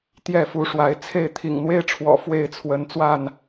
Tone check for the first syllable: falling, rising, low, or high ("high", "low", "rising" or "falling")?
falling